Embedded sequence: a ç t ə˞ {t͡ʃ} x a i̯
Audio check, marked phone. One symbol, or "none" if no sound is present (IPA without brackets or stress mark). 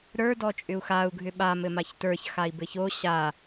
ç